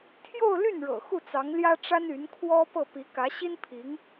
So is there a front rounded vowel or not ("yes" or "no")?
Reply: yes